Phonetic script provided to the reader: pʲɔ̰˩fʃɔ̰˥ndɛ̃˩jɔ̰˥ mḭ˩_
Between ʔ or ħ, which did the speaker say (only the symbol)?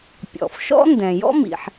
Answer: ħ